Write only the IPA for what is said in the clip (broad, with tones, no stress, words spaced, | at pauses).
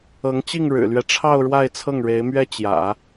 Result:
ɤ˧˥ŋt͡ɕi˥˩ŋ ɻɻ̩˨˩lɥɛ˦ʈ͡ʂʰɑ˥˧ʊ̯ ɻwa˥˧ɪ̯t͡sʰɤ˥˩ŋɻe˧˥ɪ̯mɥɛ˥ t͡ɕjä̰˨˩˦